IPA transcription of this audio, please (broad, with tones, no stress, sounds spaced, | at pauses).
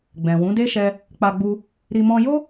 ɡ͡b ɛ̃˨ w ũ˨˦ d e˦ ʃ ɛ˧ | k͡p a˧ ɡ͡b u˧ | ɾ i˧ m ɔ̃˧ j o˦